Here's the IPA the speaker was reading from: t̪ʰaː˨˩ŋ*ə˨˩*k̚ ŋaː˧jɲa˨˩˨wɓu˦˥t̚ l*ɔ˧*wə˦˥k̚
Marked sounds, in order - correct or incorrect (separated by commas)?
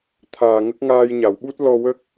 incorrect, correct